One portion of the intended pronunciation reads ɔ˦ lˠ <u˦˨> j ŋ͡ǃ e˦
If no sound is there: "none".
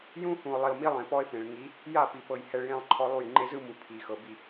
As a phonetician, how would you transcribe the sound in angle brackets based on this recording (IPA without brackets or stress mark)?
u˦˨